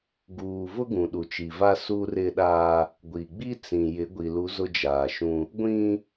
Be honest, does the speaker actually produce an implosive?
yes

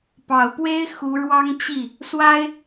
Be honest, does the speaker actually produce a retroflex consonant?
yes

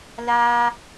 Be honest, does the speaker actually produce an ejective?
no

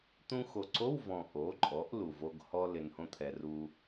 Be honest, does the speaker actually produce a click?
yes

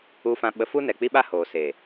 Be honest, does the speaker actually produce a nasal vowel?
yes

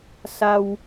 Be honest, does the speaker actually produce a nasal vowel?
no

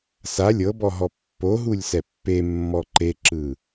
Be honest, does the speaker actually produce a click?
yes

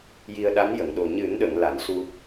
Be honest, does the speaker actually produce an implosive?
yes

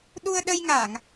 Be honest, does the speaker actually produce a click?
no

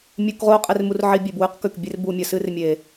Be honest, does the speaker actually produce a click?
no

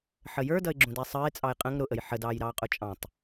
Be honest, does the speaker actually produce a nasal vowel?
yes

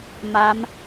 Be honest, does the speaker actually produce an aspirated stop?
no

